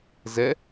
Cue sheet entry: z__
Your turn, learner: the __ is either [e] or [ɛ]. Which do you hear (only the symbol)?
ɛ